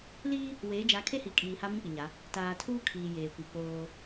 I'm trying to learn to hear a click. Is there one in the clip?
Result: no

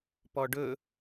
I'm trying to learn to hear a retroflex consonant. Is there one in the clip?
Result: yes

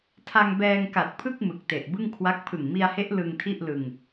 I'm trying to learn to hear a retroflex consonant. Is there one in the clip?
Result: no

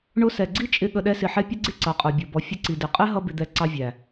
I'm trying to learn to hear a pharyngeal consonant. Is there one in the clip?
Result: yes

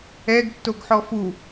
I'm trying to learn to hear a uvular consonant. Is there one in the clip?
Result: no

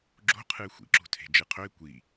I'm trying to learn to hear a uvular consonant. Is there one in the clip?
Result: yes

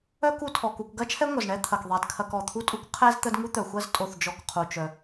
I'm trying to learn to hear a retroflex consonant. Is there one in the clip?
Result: yes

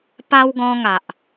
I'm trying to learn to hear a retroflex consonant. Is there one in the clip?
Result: no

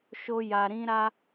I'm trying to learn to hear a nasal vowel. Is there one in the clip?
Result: yes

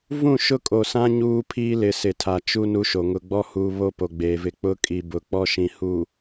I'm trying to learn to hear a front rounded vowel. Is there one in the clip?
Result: no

